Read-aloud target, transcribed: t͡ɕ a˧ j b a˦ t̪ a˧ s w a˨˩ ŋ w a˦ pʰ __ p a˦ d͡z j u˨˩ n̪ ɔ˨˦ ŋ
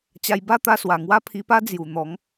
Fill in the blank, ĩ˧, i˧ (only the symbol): i˧